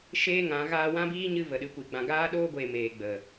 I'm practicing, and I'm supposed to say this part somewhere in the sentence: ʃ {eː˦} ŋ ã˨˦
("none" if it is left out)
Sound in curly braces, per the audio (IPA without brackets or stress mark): eː˦